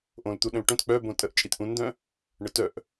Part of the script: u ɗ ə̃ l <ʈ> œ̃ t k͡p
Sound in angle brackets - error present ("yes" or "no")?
no